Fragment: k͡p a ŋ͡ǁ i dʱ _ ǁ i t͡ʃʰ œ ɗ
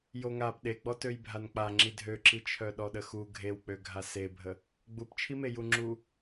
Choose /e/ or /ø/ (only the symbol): ø